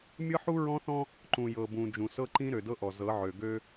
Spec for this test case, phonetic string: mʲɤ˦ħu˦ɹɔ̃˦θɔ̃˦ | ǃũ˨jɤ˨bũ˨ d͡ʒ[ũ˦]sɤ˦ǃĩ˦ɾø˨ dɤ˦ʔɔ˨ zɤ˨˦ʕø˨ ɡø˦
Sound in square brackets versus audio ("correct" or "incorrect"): incorrect